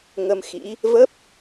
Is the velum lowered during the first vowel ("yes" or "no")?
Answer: no